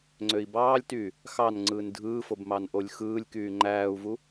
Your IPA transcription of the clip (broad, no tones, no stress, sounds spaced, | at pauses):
ŋ͡ǀ ø i̯ b ɑː lʲ t y | x ɑ n ŋ͡ǀ ɯː n dʱ ɯː f o b m ɑ n ʔ o lʲ x ɯː lʲ k yː ŋ͡ǃ æː u̯ v u